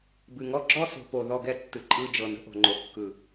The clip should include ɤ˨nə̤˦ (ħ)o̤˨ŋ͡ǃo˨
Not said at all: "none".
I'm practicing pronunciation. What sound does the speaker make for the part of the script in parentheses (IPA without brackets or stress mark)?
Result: ʔ